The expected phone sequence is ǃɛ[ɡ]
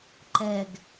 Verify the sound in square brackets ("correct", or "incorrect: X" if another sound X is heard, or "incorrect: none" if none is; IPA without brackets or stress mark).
correct